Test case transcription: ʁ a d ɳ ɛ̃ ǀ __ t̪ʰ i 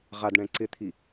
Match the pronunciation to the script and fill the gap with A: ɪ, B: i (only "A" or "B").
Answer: A